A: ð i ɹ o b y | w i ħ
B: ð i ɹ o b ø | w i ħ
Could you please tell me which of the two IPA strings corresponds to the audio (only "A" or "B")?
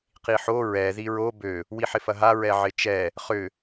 B